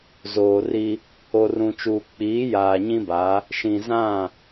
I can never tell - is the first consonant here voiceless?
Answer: no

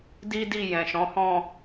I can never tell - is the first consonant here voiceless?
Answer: no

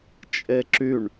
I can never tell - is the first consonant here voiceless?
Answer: yes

